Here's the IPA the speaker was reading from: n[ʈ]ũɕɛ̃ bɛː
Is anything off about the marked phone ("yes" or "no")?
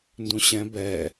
yes